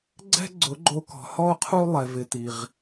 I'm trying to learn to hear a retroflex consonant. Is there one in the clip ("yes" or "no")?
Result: no